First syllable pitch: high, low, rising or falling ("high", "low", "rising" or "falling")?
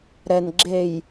low